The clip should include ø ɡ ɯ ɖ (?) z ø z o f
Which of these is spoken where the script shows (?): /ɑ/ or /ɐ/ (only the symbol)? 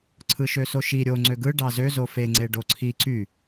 ɑ